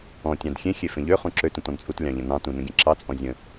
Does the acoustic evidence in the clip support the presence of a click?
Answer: yes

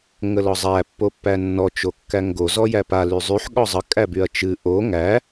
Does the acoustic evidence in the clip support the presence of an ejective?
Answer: yes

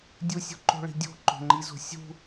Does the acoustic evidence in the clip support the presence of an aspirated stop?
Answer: no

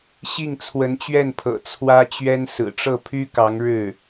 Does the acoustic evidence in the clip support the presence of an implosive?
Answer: no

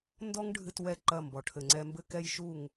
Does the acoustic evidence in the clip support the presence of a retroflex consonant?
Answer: yes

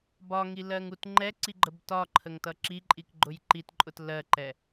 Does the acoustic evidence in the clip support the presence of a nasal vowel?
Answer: no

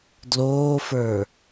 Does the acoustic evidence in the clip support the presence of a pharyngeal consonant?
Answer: no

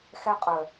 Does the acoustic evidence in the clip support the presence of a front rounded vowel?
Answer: yes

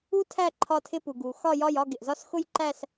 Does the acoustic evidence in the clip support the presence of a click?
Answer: yes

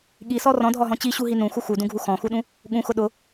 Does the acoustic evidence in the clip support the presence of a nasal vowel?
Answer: yes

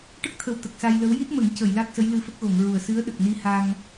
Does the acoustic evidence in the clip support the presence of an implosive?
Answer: yes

